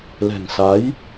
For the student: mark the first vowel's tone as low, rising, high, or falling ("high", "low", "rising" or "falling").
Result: low